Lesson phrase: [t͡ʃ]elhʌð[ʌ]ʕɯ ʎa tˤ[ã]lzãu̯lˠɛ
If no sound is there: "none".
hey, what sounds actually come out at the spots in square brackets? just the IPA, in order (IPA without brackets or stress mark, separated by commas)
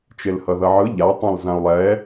t͡ʃ, ʌ, ã